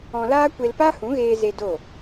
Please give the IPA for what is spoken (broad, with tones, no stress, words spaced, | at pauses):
ɔ̃˧laː˦ kʷe˧lpa˦hũ˨˦ɣeː˧ ze˧ do˦˨